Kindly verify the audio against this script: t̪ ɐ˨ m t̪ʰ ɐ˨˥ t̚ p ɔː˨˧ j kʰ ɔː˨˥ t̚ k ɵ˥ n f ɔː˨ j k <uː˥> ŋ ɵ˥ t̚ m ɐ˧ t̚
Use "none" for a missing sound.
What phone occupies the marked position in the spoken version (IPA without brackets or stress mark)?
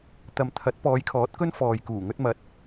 uː˨˩